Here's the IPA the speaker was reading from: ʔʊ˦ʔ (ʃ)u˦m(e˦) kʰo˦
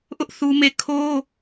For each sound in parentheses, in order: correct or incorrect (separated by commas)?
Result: incorrect, incorrect